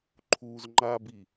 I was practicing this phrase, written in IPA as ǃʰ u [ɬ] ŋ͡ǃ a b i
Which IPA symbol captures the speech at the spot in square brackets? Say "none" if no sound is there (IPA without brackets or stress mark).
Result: z